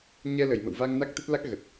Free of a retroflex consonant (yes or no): yes